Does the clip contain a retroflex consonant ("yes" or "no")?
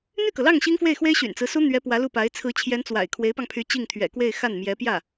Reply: no